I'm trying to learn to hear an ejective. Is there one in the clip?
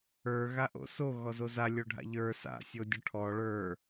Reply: no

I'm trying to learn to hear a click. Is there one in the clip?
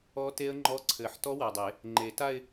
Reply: yes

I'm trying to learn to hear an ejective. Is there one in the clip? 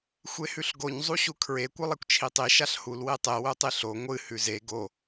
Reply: no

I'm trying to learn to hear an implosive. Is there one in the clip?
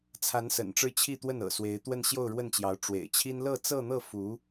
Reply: no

